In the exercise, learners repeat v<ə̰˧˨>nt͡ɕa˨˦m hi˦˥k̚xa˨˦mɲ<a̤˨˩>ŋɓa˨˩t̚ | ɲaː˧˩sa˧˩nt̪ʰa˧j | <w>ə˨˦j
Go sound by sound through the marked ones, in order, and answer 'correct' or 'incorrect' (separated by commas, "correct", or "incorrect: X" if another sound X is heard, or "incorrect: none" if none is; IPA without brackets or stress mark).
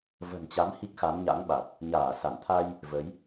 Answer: incorrect: ə̤˨˩, incorrect: a̰˧˥, incorrect: v